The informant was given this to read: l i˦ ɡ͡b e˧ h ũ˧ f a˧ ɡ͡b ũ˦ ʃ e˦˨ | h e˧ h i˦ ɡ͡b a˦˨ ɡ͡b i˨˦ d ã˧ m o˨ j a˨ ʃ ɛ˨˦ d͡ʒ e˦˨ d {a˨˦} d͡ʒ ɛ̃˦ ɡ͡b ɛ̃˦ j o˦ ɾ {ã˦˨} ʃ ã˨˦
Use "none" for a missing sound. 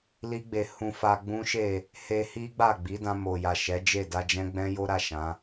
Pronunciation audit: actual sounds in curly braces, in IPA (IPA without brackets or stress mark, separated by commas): a˧, a˦˨